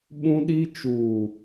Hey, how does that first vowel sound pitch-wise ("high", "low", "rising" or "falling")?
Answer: high